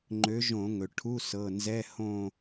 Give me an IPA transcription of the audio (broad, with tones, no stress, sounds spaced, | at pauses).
ŋ͡ǃ ø˨˦ ʒ õ˧˩˧ ŋ ɵ˩ ʈʰ u˧˥˧ s ɤ˩˧˩ n z ɛ˧˥˧ h õ˥˧